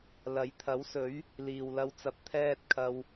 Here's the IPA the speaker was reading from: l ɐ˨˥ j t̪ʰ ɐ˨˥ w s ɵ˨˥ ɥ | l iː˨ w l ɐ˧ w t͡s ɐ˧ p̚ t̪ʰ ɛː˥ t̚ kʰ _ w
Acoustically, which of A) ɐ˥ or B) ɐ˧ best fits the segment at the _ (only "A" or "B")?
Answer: B